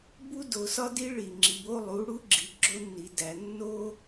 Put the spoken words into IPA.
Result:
b u˥ d o˩˧ s ɒ˥ d i˧˥ ɭ i˩ ŋ͡ǁ i˩ b o˧ lˠ u˩˧ ɽ u˥ ɡ͡ǁ i˩˧ ɡ͡ǁ o˧˥ nː i˩˧ d æ˩˧ nː o˥

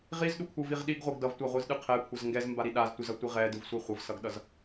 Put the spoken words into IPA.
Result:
ʁ i z ɗ u kʷʰ ɯ v i ʁ ɗ i ɡ ʁʷ ɯ ɡ d ʌ v tʷ a ʁʷ ɯ z ɗ ɯ qʰ ɛ kʷʰ ʌ z ŋ ɡ ɛ z m b a ɾ i ɗ a z tʷ i z ʌ tʷ i ʁ ɛ d ɯ v sʷ ɛ χʷ ʌ v s ʌ ɡ ɗ ʌ z

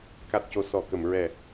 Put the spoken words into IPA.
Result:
k a˨˩ t̚ c o˨˩˨ s ɔ˨˩˨ k ə˨˩˨ m ɹ ɛ˨˩

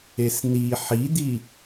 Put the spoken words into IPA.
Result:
e s n̪ i ħ i d̪ i

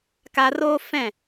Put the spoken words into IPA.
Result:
k a˧ r oː˦ f ɛ̃˦˨

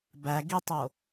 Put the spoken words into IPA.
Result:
b æ ɡ i tˤ o

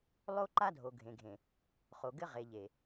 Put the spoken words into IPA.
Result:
lˠ o˦ ǃ a˦ dʱ o˨ ɡʱ ẽ˨ ɡʱ ẽ˨ | χ o˨ ɡ ɘ˦ ʁ e˨ ʎ e˨

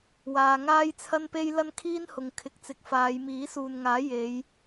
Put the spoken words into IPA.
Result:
w aː˧ ŋ aː˥ j t͡sʰ ɐ˥ n p e˥ j l ɐ˥ n kʰ iː˥ n h ʊ˨ ŋ kʰ ɪ˨˥ k̚ t͡s ɪ˨ k̚ f aː˨˧ j m iː˨˥ s uː˨ n ŋ aː˨˥ j e˨˧ j

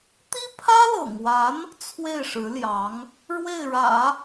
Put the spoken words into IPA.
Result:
t̪ i˥ pʰ ä˥ l ɤ̰˨˩ ŋ w a˧˥ n | t͡sʰ w e˥˩ ɪ̯ ʂ ɻ̩˧˥ l j ɑ˧˥ ŋ | ɻ w e˥˩ ɪ̯ ɻ ä̰˨˩˦

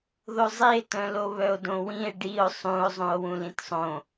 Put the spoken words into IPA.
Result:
ð o zˤ i e̯ t œ̃ l o β œ o̯ d õ w ĩ e̯ ɖ i o̯ sˤ ũ o̯ zˤ ũ o̯ w ũ l ĩ t sˤ õ

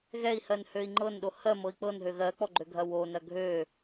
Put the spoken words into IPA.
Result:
ɣ ɛ i̯ h ɜ n h ø i̯ ŋ͡ǃ ɤ n ɗ o h ɜ m ɤ i̯ k͡p ɤ n ɦ ø ɣ ɜ k͡p ɔ ɡ͡ǃ ø ɡʱ ɐ w o n ɐ ɡʱ ø

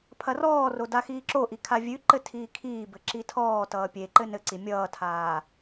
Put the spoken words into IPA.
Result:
pʰ ɐ r ɔː r o d a x iː ǁ o ʔ i kʰ a vʲ ʉ ǃ ɘ tʰ iː kʰ iː b ɘ ǁ i tʰ ɔː t ʌː pʲ e ǃ ɘ n ɘ ǀ i mʲ ʌː tʰ aː

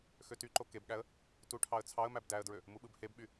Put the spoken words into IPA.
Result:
x ø t y ǃ o k e b ɠ æ ə̯ | t u ʈʰ ɑ ə̯ t͡sʰ ɑ ə̯ m æ b d æ ə̯ d ɹ ø | m u ɓ ɯ b h e b ɓ y

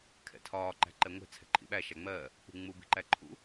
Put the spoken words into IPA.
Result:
kʰ ɛ̰ tʰ ɒː ǃ æ̤ ǃ ɛ ŋʷ ɛ̤ t͡sʰ ɛ̤ ǃʰ ḭ ɓ æ ʃ æ ŋ͡m ɜː | k͡p ṳ ŋ͡m u b i̤ ǃ æ ǃʰ ṵ

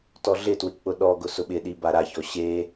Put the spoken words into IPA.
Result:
t ɔ ɮ ɪ t w ɪ k͡p ʊ ɗ ɔ ɡ ʊ s ʊ ɓ ɪ ɗ i b a ɾ a ç ɔ ɕ e

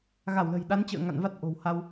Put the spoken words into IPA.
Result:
ɣ a˧˩ w l ə̤˨˩ j ɗ a˨˦ n t͡ɕ ə̰ː˧˨ ŋ a̰˧˨ n v a˦˥ t̚ ʔ o̤˨˩ w h a˧ w

